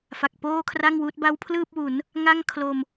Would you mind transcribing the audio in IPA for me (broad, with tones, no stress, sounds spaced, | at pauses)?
f a˨˩ k̚ p oː˥˩ kʰ r a˥˩ ŋ w uː˦˥ t̚ b a˦˥ w pʰ l ɯː˥˩ p̚ w u˩˦ n | ŋ a˥˩ ŋ kʰ l o˧ m